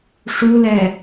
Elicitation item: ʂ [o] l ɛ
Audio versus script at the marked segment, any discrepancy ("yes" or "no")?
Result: yes